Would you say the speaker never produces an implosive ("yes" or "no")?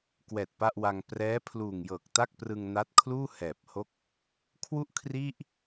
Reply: yes